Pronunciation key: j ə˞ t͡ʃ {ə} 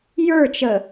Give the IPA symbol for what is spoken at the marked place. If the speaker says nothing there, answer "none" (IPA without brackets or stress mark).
ə